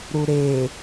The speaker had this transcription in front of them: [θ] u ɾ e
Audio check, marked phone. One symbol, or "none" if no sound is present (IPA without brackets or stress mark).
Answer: ɾ